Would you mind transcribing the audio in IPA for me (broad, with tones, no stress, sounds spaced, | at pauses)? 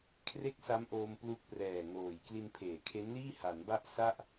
kʰ r e˥˩ k̚ s a˦˥ m ʔ oː˧ m p l u˦˥ k̚ p r ɛː˨˩ ŋ oː˨˩ j k l i˧ n pʰ eː˩˦ kʰ e˦˥ n l iː˥˩ h a˩˦ n b a˥˩ ʔ s a˥˩ ʔ